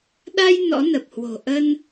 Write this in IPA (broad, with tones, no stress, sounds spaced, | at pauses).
ɗ a˧ j n ɔ̰˧˥ n ə˨˩ p̚ h w o̤˨˩ ʔ ə˧ n